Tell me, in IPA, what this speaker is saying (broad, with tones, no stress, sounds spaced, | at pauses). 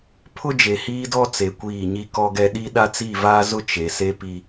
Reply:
pʰ ʊ˦ d͡ʒ e˨ h iː˦ d ɔ˦ t͡s e˨ kʷ iː˦˨ ɲ i˦ k ɔ˦ ɡ ɛ˦ ɗ i˦ ɗ a˦ t͡s i˦˨ v aː˦ z ʊ˦ t͡ʃ e˨ s e˦ p i˦